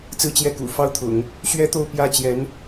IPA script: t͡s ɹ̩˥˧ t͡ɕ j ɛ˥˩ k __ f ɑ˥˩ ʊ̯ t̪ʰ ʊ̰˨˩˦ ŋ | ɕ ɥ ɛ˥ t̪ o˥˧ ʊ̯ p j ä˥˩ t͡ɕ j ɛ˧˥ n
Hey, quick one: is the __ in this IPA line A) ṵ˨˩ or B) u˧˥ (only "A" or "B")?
A